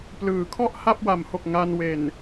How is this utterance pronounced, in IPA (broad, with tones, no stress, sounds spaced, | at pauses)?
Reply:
p l ɯː˩˦ kʰ ɔ˥˩ ʔ h a˥˩ p̚ w a˩˦ m h o˨˩ k̚ ŋ a˧ n w e˨˩ n